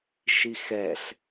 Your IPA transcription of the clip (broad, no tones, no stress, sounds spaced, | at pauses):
ʃ i x ɛ ɬ